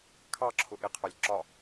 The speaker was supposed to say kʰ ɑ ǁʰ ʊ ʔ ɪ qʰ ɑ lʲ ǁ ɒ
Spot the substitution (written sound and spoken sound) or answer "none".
none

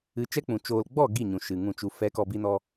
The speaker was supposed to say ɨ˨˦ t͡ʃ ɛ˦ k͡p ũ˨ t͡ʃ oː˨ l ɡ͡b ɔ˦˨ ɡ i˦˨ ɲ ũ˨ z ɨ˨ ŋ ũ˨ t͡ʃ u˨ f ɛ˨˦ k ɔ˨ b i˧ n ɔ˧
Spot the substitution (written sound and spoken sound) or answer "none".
z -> ʃ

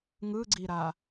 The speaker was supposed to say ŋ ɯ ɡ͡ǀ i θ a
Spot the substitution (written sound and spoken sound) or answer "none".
θ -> ɾ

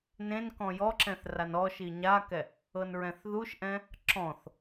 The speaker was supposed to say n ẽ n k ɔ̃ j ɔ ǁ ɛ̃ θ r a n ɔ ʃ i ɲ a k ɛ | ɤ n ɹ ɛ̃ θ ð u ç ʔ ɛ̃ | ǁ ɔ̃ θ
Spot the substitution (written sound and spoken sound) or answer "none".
ç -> ʃ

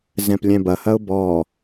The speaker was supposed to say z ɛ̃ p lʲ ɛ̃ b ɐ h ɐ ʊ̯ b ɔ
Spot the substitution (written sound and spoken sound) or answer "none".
none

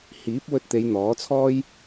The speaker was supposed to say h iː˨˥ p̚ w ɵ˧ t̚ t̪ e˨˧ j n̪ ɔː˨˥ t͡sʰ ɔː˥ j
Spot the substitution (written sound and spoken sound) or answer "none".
none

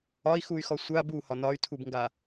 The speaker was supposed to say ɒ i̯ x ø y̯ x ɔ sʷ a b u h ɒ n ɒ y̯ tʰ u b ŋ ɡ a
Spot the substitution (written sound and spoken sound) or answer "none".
ø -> u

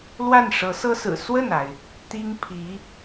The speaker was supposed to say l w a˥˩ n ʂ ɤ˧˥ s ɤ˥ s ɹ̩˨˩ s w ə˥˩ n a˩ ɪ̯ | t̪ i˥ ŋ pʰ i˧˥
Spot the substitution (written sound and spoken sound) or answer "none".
none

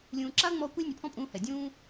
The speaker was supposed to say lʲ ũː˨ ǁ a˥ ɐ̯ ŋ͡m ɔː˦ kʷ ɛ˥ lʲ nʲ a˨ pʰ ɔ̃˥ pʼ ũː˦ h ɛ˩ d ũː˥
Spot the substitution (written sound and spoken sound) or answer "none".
d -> dʲ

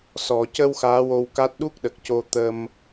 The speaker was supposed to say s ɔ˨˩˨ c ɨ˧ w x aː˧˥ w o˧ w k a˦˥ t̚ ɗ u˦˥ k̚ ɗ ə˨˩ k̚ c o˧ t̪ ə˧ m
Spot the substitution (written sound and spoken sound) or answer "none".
ɨ˧ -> ə˧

